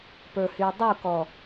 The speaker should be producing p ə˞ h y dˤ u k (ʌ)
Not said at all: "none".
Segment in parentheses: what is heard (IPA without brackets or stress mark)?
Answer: ɔ